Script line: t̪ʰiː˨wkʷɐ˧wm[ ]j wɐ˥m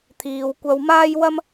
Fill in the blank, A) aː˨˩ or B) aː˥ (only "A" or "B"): B